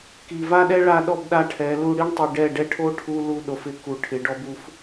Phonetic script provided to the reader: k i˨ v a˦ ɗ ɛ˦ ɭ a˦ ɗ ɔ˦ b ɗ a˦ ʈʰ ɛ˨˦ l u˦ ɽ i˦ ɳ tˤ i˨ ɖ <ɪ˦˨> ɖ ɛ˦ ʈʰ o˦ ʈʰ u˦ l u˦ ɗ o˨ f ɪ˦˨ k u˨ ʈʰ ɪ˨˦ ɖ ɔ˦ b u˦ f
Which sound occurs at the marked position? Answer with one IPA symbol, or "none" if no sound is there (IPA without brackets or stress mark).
ɛ˦˨